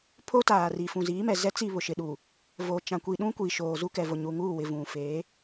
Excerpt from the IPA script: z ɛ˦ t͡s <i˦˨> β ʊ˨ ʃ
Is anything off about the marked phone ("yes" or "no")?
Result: no